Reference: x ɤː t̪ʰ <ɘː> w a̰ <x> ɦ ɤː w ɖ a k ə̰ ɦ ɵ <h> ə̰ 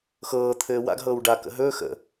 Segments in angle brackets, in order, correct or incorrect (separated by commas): correct, incorrect, incorrect